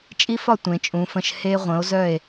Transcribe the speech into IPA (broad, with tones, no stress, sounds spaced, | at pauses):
t͡ʃʼ i˥ f ɒ˥˧ tʷ ẽ˩˧ t͡ʃʼ ũ˩˧ f ə̃˧ ʃ h e˧ ʁʷ ə̃˩˧ o̯ z œ˧˩ e̯